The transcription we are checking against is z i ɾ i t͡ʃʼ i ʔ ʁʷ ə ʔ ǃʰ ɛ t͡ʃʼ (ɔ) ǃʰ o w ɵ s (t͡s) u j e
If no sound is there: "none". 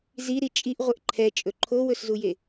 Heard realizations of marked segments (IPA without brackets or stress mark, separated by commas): ɵ, z